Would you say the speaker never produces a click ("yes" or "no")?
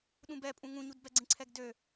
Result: no